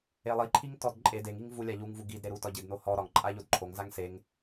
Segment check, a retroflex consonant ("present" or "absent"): absent